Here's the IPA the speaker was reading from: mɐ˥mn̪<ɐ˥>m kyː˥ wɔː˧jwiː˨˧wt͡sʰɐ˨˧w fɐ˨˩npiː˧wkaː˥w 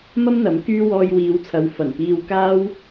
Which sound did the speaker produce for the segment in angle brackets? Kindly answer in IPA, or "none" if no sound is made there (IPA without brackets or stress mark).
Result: ɐ˨˥